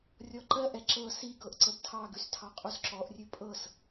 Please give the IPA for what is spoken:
rʲɔǃɜʔɛ ǁɤ siɡɤʔ ǀəbtʰɑɡʉs tʰɑqʼusǁɔʔrʲʉ pʼɤs

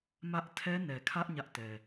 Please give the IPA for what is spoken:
mä˦ʔ tʰɛ˦nɛ˨kʰä˦ʔ ɲä˦ʔtɛ˨

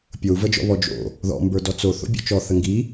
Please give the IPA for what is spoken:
pʲou̯vəd͡ʒɔ̰ βɔd͡ʒo̰ | ðɔ̰mbə˞dɔt͡s oθo̰ bʲɔ̰t͡ʃɔ θəŋɡi

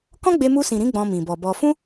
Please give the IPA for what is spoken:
kɔ̃˦ɡ͡be˧ mu˧sĩ˨ɾĩ˨˦ ɡ͡bɔ̃˧mĩ˨bɔ˨bɔ˧ fũ˦

